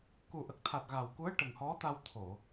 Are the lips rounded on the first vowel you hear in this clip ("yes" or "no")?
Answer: yes